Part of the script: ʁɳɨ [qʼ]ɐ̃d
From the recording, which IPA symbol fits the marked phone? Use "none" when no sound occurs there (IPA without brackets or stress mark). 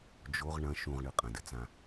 qʼ